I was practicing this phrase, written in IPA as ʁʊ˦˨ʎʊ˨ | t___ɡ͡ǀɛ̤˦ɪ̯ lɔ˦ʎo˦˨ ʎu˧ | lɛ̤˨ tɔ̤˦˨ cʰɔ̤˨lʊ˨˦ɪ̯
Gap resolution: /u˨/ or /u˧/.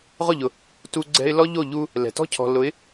u˧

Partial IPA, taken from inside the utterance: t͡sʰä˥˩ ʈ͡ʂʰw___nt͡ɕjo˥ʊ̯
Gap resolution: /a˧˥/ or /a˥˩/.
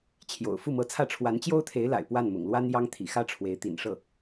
a˧˥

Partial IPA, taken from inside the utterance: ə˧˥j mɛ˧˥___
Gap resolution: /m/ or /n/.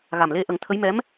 m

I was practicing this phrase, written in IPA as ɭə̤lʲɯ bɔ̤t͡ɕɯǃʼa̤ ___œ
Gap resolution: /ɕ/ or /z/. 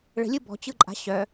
ɕ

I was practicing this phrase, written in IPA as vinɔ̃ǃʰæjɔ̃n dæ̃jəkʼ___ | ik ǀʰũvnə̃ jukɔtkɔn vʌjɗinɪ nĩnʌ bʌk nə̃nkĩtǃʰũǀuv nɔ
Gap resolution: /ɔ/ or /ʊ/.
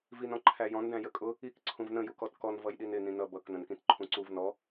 ʊ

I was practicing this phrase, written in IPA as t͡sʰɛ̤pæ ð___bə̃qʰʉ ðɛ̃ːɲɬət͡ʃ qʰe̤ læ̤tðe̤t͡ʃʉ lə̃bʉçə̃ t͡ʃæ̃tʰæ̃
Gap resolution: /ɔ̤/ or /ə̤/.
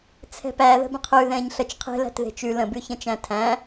ə̤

